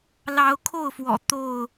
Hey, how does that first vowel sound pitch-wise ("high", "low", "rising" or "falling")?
rising